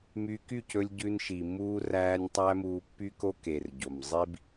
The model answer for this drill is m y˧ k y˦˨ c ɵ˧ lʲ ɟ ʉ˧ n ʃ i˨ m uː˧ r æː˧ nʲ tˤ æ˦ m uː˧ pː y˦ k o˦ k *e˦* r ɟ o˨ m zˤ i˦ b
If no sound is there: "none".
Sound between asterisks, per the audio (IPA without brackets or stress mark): e˨